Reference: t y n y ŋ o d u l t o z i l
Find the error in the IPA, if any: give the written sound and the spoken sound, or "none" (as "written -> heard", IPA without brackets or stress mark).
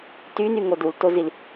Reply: none